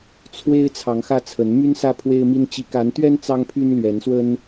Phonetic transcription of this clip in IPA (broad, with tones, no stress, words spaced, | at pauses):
t͡sʰwe˦ɪ̯ t͡sʰɑ˨˦ŋxä˦t͡sʰə˨˦n my˦nsä˦ pʰwe˦ɪ̯mi˦n t͡ɕi˨˦ka˨˦nt̪ɥɛ˦n t͡sɑ˦ŋpʰy˦n lɥɛ˨˦nswə˦n